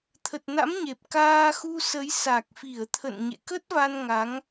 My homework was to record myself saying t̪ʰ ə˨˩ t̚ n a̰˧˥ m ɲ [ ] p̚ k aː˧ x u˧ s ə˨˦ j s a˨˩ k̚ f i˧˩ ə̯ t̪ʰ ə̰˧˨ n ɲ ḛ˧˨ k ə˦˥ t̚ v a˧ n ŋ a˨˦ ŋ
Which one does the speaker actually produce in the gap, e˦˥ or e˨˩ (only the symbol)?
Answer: e˨˩